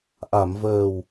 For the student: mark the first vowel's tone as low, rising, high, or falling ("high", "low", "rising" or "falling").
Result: low